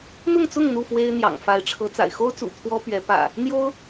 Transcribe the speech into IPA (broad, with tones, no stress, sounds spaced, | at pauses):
n̪ ʊ˥˨ ŋ t͡s ʊ˥˨ ŋ n̪ u˥˨ f w e˦ ɪ̯ n̪ j ɑ̰˨˩ ŋ f a˨˦ ɪ̯ ʈ͡ʂʰ ɤ˨˦ t͡s a̰˨˩ ɪ̯ x o˦ ʊ̯ t͡s ṵ˨˩ t̪ʰ w ɔ˦ p ɥ ɛ˨˦ p ä̰˨˩ | n̪ j o˦ ʊ̯